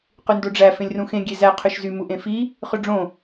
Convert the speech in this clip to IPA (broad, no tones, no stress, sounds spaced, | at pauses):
q y n d o ɖ͡ʐ æ f ẽ lʲ r ũ x ẽ ɡʲ e z æ qʰ ø ʃ z y m u ʔ ẽ f i | χ ø ɖ͡ʐ õ